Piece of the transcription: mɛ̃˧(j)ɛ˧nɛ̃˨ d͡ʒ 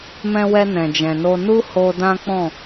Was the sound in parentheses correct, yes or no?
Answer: no